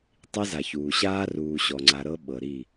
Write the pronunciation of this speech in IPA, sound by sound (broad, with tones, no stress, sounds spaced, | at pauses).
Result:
tˤ i˦ z a˨ ç uː˨ ɕ aː˦ r uː˨ ɕ ɔ˨ ŋ͡ǀ a˨ ɾ ɤ˦ ɓ ɤ˨ ɾ i˦˨